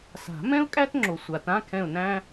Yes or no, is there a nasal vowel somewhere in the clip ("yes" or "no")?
yes